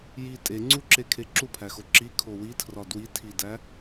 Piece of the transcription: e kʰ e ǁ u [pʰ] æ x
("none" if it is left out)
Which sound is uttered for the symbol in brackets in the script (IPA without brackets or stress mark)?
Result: pʰ